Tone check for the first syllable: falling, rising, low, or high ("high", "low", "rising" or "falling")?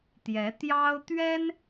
rising